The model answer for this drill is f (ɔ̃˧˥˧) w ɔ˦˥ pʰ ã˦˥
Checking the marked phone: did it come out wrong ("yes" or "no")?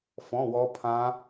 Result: no